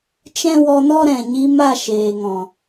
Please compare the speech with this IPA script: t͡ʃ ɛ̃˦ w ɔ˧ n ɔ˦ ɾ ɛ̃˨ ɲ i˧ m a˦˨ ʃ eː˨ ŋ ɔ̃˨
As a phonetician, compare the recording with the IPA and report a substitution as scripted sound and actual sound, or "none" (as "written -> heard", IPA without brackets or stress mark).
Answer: none